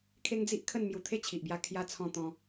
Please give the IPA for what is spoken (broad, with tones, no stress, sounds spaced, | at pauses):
kʰ e˦ ŋ d͡z i˦ ʔ kʰ ə˥˧ n m j u˧ t̪ʰ e˥˧ t͡ɕʰ i˨ ʔ b j a˧ kʰ j a˧ t͡sʰ ɔ̃˧ t̪ ɔ̃˧